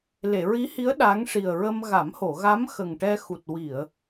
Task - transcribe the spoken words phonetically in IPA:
le˨˩˨ɹi˧˥hi˧˥ə̯ ɗa˧˥ŋʂi˨˩ə̯ɹə˧m ɣa˨˩˦mho˨˩˨ɣa˧˥m xə˨˩ŋʈɛ˧ xu˨˩t̚ wi˨˩˨ə̯

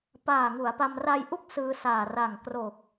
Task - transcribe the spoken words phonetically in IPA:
paː˨˩ŋu˩˦a̯pa˧m raː˧jʔu˦˥k̚ sɯː˧saː˨˩ ra˨˩ŋkro˨˩k̚

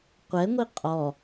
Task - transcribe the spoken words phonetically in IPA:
qʷɛŋʷi qʼɔ

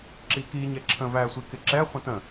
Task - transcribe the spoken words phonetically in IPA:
ǁiki ɲɛǁʰə̃ væsʷikɪǁɛ χʷə̃tə̃

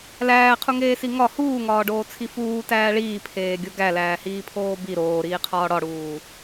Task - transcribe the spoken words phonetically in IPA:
læːqʰuŋeːsi ŋɒ huːŋɒːɖoːt͡sʰi fuːtæː ɭiːpʰeːɡʲo ɡælæːhiːpʰoː bi ɾoːɾiːqʰɒː ɽɒɽuː

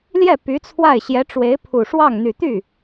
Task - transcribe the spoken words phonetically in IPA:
ljɛ˥˩ py˧˥t͡sʰwa˥˩ɪ̯ ɕjɛ˧˥ʈ͡ʂwe˧˥ɪ̯ pʰu˨˩ʂwɑ˥˩ŋ n̪y˨˩t̪y˥˩

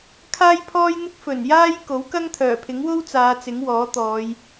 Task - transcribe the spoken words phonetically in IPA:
kʰaː˥jpʰɔː˥jn̪ɪ˥k̚ fɵ˨˩n jaː˥j ko˨˥wkɐ˥ŋt̪ʰœː˨˩pʰɪ˨˥ŋ wo˥wt͡saː˨˧ t͡sɪ˨˥ŋwɔː˨˥t̪ɔː˨˧j

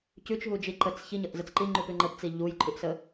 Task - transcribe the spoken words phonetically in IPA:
cʉt͡ʃɦud͡ʒi ǃət͡s çiɲəʔzət͡s ǃiŋ͡ǃupʉ ŋ͡ǃəpt͡si ʎujǃʰʉʔsə

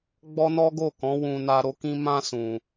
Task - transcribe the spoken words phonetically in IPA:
ɡ͡bɔ˦ nɔ˦ɡo˦˨kɔ̃˨˦ wũ˧ na˧ɾo˧ kĩ˧ mã˧ sũ˨

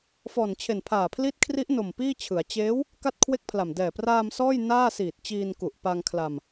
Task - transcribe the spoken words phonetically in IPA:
fɔː˨˩nt͡ɕʰe˨˩npʰaː˨˩pʰli˦˥t̚ kʰri˦˥ʔno˨˩m piː˥˩t͡ɕʰɯ˩˦a̯ t͡ɕeː˦˥w | ka˥˩t̚kʰwe˥˩k̚pʰla˨˩m dɛː˨˩praː˧m sɔː˥˩j naː˥˩siː˨˩t̚ t͡ɕiː˧nku˨˩ʔ pa˧ŋkʰla˧m

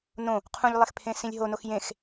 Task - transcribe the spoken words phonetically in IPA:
nõ | qʰũʎlˠexpʰẽsĩlʲ ɦonox jẽx

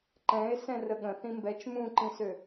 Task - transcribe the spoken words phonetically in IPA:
ǃɛ̃e̯sɛ̃ rəɠə̃ θĩmbɛt͡ʃ mũǃĩsø

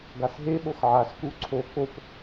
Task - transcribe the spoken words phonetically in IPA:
ɡasɦeɓox ʕasku ǀʰo kop

